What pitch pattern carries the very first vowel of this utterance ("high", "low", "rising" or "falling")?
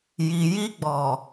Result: low